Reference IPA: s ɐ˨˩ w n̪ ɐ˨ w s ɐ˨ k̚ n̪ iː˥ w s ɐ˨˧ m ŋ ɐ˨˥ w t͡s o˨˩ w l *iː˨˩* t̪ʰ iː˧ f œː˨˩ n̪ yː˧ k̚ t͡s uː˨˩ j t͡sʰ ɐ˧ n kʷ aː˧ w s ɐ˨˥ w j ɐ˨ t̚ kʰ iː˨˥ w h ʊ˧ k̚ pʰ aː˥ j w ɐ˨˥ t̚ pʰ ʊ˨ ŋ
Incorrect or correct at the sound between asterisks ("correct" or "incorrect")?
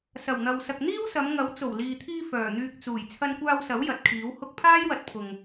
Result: incorrect